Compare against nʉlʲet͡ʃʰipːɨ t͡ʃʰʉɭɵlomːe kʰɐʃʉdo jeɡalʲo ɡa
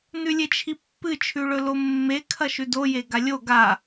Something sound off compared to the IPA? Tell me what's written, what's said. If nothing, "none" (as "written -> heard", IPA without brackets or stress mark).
none